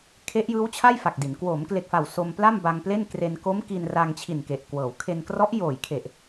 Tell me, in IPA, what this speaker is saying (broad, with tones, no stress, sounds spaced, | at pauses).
kʰ e˦˥ ʔ j ɯː˦˥ w t͡ɕʰ a˥˩ j f a˨˩ k̚ d i˩˦ n k w oː˩˦ m k l e˨˩ k̚ f a˨˩ w s o˧ m p l a˥˩ m b a˧ ŋ p l e˥˩ n k r e˧ n k o˦˥ m k i˧ n r a˧ ŋ t͡ɕʰ i˨˩ n k e˨˩ ʔ k w ɤː˩˦ w kʰ e˧ n k r ɔ˦˥ ʔ j oː˨˩ j kʰ e˨˩ ʔ